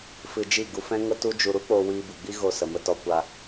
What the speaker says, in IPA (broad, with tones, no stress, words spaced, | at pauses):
fɨ˧d͡ʒi˦˨ɡu˧ fɛ̃˦ŋə˦ tu˦d͡ʒu˧ ɾu˦k͡po˧ wiː˧bɨ˨ɡ͡bi˦ ɣo˧sə˨ mə˧tɔ˧ kʷa˧